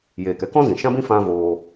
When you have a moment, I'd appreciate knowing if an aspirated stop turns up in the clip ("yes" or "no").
no